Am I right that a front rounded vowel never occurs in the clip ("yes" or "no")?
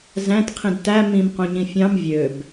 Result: no